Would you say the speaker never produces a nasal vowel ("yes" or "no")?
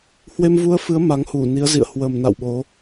yes